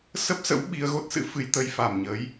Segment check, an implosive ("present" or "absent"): present